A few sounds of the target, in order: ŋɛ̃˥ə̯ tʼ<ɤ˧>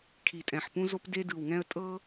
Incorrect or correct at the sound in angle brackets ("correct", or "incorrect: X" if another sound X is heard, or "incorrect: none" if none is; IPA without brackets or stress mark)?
incorrect: ɤ˥